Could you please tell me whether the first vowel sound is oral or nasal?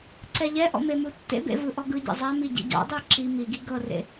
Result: oral